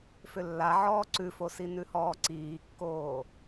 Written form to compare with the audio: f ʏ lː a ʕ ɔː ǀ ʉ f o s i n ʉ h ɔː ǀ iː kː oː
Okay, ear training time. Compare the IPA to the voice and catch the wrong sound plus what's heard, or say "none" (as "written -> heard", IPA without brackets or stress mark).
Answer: none